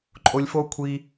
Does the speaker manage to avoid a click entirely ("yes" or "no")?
no